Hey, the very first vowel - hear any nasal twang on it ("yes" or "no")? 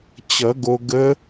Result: no